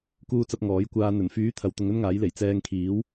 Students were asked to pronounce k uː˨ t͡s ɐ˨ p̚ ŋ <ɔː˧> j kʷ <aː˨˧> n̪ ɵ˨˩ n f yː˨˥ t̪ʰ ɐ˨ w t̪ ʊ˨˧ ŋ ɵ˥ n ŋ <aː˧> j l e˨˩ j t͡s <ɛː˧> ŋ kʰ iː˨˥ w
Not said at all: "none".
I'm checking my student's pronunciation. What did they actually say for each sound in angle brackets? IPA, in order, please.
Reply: ɔː˨˥, aː˧, aː˨˥, ɛː˧

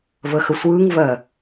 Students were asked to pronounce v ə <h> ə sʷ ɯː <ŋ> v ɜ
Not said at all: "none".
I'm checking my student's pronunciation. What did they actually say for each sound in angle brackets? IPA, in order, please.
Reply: x, ŋ

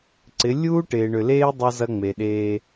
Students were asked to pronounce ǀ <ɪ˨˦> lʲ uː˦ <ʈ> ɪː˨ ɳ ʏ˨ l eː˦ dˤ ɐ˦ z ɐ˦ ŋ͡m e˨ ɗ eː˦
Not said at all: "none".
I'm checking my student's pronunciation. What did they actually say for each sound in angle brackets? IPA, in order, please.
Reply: ɪ˨˦, ʈ

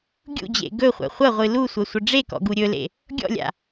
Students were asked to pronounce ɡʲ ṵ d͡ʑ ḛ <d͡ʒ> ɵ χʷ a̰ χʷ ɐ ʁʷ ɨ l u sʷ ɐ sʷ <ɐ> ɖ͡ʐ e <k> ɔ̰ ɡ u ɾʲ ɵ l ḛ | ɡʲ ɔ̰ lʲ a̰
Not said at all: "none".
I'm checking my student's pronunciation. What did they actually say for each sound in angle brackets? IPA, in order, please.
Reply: ɡ, ə, k

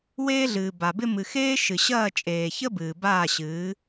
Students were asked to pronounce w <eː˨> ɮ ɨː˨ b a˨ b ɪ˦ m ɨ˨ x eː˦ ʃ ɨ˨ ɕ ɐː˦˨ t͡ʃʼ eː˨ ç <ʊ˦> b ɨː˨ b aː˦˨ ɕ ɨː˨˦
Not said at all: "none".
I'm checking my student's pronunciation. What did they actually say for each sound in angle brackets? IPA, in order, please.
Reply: eː˦, ə˦

